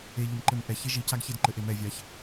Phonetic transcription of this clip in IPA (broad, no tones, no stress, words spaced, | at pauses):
e ʎɘmǃɘmʔɛ çeʒicaɡ çedǃɘʔemɛ vʲaç